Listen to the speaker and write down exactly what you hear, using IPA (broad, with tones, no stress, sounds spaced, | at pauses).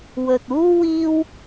w ɵ˨ t̚ uː˥ w iː˥ w